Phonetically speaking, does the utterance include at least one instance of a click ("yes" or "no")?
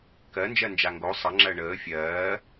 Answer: yes